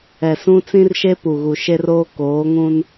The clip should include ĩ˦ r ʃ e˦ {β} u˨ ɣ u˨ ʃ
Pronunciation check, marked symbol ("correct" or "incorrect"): incorrect